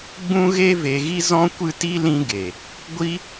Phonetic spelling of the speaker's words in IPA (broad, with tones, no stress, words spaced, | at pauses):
ɡ͡bũ˦ɣe˦ ve˧ɣi˦ zɔ̃˦kʷɨ˦ti˦ lĩ˦ɡe˨ | ɡʷi˦